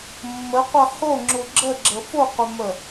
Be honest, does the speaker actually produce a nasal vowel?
no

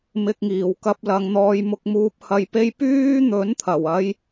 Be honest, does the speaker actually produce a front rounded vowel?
yes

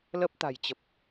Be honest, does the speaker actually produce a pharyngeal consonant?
no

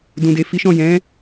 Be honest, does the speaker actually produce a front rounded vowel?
no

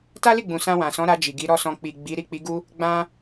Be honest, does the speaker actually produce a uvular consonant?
no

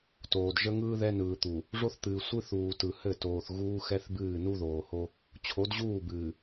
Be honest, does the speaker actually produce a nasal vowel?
no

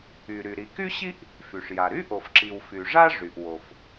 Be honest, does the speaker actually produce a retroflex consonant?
yes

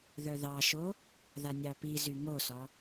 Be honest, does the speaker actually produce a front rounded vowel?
yes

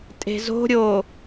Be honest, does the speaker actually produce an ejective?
yes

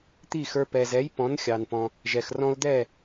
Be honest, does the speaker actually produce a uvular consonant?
no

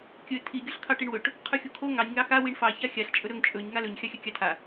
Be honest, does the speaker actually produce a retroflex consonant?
yes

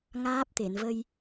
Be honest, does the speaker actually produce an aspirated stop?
no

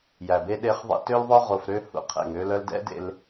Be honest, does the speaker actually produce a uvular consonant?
yes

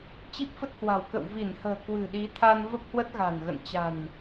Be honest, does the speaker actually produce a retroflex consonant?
no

